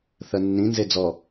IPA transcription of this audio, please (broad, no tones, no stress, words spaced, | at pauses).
θɜnːĩ nzed͡zɔ